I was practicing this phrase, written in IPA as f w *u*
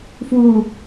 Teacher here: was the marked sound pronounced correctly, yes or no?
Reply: yes